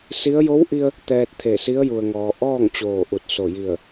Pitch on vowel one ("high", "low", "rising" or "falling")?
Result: rising